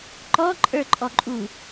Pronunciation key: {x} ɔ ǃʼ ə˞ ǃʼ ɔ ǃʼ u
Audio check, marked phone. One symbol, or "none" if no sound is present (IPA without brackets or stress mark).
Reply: ǃ